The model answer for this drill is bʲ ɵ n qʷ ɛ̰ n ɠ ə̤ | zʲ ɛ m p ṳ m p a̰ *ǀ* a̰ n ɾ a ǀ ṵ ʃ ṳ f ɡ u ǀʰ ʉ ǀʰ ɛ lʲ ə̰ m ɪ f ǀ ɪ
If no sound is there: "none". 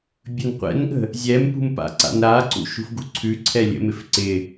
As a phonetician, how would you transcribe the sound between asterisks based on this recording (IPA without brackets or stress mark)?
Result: ǀ